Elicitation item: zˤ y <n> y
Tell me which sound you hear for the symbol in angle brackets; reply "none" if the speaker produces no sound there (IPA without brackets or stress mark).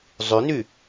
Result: n